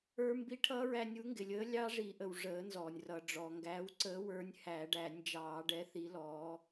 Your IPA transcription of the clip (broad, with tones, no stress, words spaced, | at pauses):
ə˞˦˥mbi˦˥ ʈʰʌː˦˥ɹæ˧ nʲu˨˥ŋɡɪ˩lʲəː˨˥ lʲɑ˦˥ʐi˨˩˦ʔə˩w ʐəː˨˩˦nzɔː˩nʲ rʌ˩ɖ͡ʐɔ˩ ŋɡæː˨˥wǀəː˨˥wə˞˨˥nʲ hæ˨˩˦ɖæ˨˩˦nʲd͡ʒɑː˨˩˦ ɖɛ˨˥θi˨˥ lɔː˨˥